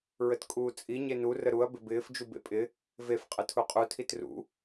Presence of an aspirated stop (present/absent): present